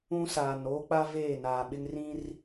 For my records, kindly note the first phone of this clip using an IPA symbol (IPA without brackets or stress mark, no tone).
ũ